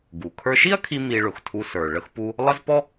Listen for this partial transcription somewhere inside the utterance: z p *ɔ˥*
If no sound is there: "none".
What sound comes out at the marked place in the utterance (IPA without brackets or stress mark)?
ɔ˥